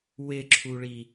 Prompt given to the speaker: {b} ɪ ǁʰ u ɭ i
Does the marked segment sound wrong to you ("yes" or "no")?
yes